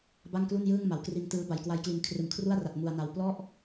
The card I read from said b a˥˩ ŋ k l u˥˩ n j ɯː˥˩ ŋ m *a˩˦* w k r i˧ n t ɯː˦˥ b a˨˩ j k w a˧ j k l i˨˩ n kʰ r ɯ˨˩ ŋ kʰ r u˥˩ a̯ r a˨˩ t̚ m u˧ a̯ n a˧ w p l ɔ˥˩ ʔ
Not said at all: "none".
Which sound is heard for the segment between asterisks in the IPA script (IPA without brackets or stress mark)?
a˩˦